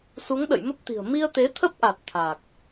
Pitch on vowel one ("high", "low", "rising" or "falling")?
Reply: rising